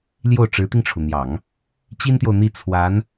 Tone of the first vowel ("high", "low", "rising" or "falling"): falling